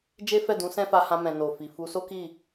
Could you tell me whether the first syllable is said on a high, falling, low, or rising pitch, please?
high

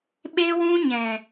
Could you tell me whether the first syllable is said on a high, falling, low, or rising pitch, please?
high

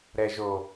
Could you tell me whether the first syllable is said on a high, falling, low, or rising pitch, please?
low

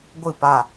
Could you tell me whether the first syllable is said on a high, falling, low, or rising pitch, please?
falling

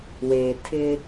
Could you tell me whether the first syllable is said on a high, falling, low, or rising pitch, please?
low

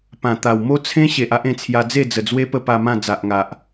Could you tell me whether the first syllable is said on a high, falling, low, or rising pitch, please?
low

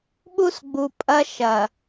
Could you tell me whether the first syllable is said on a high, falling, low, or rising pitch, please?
high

